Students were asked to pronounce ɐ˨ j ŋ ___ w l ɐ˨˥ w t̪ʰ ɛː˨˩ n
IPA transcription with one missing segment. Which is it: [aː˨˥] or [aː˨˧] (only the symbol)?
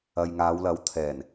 aː˨˧